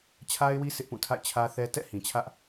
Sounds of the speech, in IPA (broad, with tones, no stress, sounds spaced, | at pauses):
t͡ɕʰ a˦ ɪ̯ w i˦ sʰ ɪ˦ ʔ p ũ˦˨ tʰ a̰˦˨ ɪ̯ t͡ɕʰ ä˦ θ ɛ˦ t ɛ̰˦˨ h ĩ˨ t͡ɕʰ ä˦ ʔ